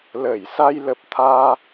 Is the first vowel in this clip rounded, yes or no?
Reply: no